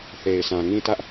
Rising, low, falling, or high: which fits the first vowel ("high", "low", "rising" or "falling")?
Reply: low